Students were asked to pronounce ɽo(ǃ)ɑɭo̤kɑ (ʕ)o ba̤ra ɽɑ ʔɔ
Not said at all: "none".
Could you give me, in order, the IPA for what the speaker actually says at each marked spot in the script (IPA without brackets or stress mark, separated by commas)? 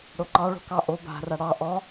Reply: ǃ, ʔ